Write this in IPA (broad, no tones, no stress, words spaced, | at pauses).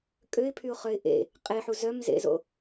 kʼøɪ̯pʰyʊ̯χœɪ̯ ʔḛ | qʼeħu zœmzḛzo̰